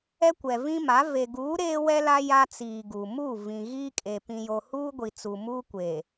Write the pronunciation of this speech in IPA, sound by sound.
ɛ˦ kʷ ɛ˨ v ĩ˦ m a˨˦ v e˨ ɡ uː˨˦ ɾ eː˦ w ɛ˦ l a˦ j a˦ t͡s iː˨ ɡ uː˨ m u˦˨ v ĩ˨ ɣ iː˦ kʼ e˨ p ĩ˨ j o˨ h uː˦ ɡʷ i˨ t͡s u˨ m uː˦ kʷ e˨

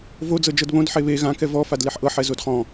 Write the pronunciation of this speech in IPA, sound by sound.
v o d͡z ɤ d͡ʒ ɤ d β õ d ħ e β e ɣ ã k ɛ v ɔ f a d l e ħ ʔ ɤ ħ ɛ z o d χ ɔ̃

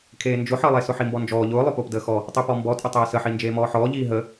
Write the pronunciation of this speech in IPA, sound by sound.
kʰ eː n d͡ʒ ʊ ħ əː lˠ e s ʊ ħ i m b ɔ n d͡ʒ ɔː ʎ ʊː lˠ ʊ p ʊː p d əː x ɔ | tˤ i p ɔ m b ɔ tʼ ə tˤ eː s ə ħ i n d͡ʒ eː m ɔː ħ ɔː ʎ iː ɦ ə

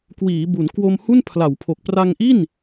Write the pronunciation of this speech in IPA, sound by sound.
k w iː˩˦ b u˩˦ n k w o˧ m h u˥˩ n pʰ l a˩˦ w pʰ o˨˩ k̚ p r a˧ ŋ ʔ i˥˩ n

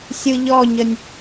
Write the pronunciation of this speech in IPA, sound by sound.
sʲ ɯ ʎ ɔ ɲ ə nʲ

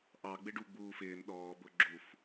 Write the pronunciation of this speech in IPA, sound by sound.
ʔ ɑ ɡ͡b ɪ ɖ u ɡ͡b uː f ɪː n ɗ ɔː b ʊ ɡ͡ǁ u f

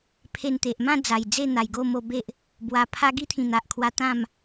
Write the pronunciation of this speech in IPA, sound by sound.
pʰ e˧ n t̪ e˨ ʔ m ã˥˧ d͡z a˨˩ j d͡z e˥˧ n̪ a˨˩ j ɡ o˥˧ m o˧ b e˦ ʔ | b w a˧ pʰ a˦ ɡ i˦ t̪ʰ ĩ˨˩ n̪ a˨ ʔ kʰ w a˧ t̪ ã˥˧ m

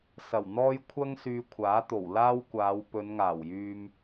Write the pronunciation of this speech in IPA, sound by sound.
s ɐ˨˩ w n̪ ɔː˥ j kʷʰ ɐ˥ ŋ s yː˧ kʷʰ aː˨˥ t̪ o˨˩ w l aː˥ w kʷ aː˨˧ w p ɵ˨˧ n ŋ aː˨˩ w j yː˧ m

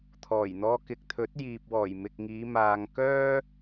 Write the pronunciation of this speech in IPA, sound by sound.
t̪ʰ ɔː˨˩ j n̪ ɔː˧ k ɪ˨ k̚ t̪ʰ ɵ˨˥ t̚ j iː˨ p̚ w ɔː˨˩ j m ɪ˨ k̚ ŋ iː˨˧ m aː˨ ŋ k œː˥

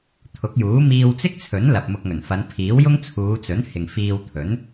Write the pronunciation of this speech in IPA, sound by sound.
t̪ʰ ʊ˨˥ k̚ j uː˨˥ m iː˧ w t͡s ɪ˥ k̚ t͡sʰ ɵ˨˥ n l ɐ˨ p̚ m ʊ˧ k̚ ŋ ɵ˨˩ n f ɐ˨˧ n pʰ iː˨˥ w j ʊ˥ ŋ t͡sʰ uː˨˧ t͡s ɵ˨˥ n h ɪ˨ ŋ f iː˧ w t̪ʰ ɵ˨˥ n

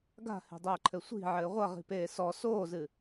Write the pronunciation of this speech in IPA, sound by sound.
ɡ a̤ h e̤ dˤ ɘː ǃʰ ɘ sʷ i̤ ʕ ɘː ʁʷ ɐ ʁ i̤ p eː s ɔ s oː z ɨ

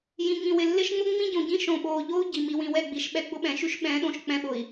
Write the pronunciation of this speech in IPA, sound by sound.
j ĩ˨ ŋ ĩ˨ w ɪ˨ lː ɪ˦ ʃ ŋ͡m ʊ˦ ŋ͡m ĩ˦ ɟ õ˨ ɟ ĩ˦ ʃ õ˨ ɓ oː˨ ʎ o˦ u̯ ɟ i˨ m i˨ w ĩ˨ w ɛ˦˨ ɡ͡b i˨ ʃ ɓ ɛ˦ ɡ͡b ʊ˦ ɓ ɛ̃˨ ʃ y˦ ʃ ɓ ɛ̃ː˨˦ ɗ õ˨ ʃ k͡p ɛ̃˦ ɓ ʊ˨ i̯

